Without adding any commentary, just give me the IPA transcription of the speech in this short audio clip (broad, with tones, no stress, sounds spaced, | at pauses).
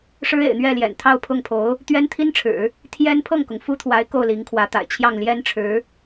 ʂ ɻ̩˥ ḛ˨˩ ɪ̯ n̪ ɥ ɛ˥˩ l j ɛ̰˨˩ n t̪ʰ ɑ˥˧ ʊ̯ pʰ ʊ˥˩ ŋ pʰ o˧˥ ʊ̯ | t̪ ɥ ɛ˥ n t̪ʰ i˥ n ʈ͡ʂʰ ɻ̩˨˩˦ | t̪ʰ j ɛ˥ n pʰ ɤ˥˩ ŋ k ʊ˩ ŋ f u˥ t̪ʰ w a˧˥ ɪ̯ k o˥˩ ʊ̯ l i˧˥ ŋ kʰ w ä˧˥ t̪ a̰˨˩ ɪ̯ t͡ɕʰ j ɑ˥˩ ŋ l j ɛ˥ n ʈ͡ʂʰ ɻ̩˧˥